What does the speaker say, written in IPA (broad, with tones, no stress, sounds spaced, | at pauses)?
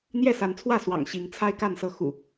n̪ j ɛ˥˨ s a˨˦ n t͡sʰ w ä˥˨ s w ɑ̰˨˩ ŋ ɕ i˨˦ ŋ t͡sʰ a˦ ɪ̯ k a˥˨ n s ɤ˥˨ x ṵ˨˩